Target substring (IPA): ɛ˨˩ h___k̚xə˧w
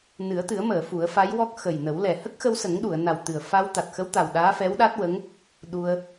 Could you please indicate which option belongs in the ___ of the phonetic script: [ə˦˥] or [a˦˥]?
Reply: ə˦˥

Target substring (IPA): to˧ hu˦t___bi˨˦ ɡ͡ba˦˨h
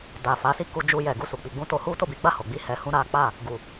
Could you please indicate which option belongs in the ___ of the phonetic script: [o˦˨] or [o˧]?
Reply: o˦˨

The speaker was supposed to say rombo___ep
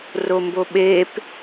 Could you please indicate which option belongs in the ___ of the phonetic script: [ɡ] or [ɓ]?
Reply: ɓ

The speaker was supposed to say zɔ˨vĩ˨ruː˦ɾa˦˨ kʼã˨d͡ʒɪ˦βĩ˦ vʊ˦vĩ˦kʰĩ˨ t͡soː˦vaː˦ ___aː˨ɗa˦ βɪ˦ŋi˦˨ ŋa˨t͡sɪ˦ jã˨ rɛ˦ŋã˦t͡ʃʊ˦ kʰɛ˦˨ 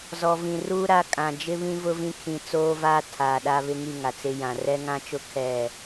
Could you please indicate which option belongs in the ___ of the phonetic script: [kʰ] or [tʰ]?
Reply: tʰ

